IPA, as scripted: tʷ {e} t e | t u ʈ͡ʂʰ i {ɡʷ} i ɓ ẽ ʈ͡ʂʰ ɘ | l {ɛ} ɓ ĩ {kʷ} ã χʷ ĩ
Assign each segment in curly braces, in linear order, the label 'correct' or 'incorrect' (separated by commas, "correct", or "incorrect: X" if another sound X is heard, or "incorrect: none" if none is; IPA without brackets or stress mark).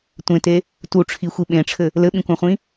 incorrect: ẽ, incorrect: xʷ, incorrect: ɘ, correct